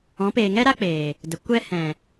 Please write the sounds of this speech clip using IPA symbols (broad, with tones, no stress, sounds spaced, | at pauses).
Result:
ɔ̃˨˦ p eː˨ ŋ ɛ˦ ɾ a˦ k͡p eː˨ | d ə˨ kʷ ɛ˧ h ɛ̃˨